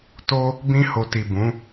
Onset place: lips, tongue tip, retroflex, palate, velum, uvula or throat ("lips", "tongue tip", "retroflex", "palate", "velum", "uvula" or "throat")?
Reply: tongue tip